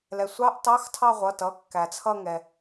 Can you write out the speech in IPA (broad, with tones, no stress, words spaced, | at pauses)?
lɛ˩sʷɑ˧˥˧ʔ tɑ˧˥˧xtʰɑ˥˧ʁʷʌ˩˧˩tʌ˩˧˩ kːæ˩t͡sʰʌ˥˧ŋɛ˩